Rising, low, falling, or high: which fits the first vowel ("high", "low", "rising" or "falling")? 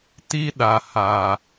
high